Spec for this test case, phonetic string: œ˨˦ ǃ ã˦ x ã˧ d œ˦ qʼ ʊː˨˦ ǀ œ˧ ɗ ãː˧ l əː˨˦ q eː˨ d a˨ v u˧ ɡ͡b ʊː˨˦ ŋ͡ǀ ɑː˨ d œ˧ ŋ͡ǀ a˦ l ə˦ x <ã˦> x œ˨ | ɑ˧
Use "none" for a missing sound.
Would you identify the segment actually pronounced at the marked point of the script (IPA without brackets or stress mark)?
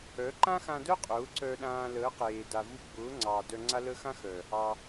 ã˦